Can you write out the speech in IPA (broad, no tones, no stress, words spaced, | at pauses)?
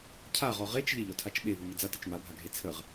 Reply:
cʰaʁɔ ʁet͡ʃ ʎeʎɔtʰat͡ʃ ɓevʉmə d͡zatət͡ʃ mabʱaɡʱe t͡sʰəʁ